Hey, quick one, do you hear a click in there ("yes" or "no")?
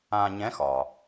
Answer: no